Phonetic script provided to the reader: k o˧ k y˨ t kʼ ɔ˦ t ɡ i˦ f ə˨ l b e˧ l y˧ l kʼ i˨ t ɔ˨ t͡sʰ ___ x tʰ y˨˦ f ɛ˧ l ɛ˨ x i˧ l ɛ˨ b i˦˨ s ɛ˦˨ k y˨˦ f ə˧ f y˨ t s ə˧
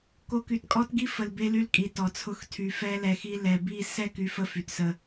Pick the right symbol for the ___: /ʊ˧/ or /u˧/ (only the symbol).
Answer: ʊ˧